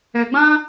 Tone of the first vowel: low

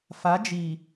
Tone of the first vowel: rising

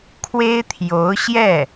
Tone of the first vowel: high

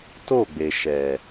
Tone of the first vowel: falling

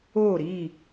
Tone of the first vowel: falling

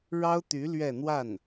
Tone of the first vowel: high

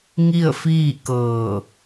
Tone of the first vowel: falling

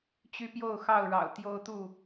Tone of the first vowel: high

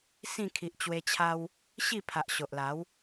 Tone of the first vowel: falling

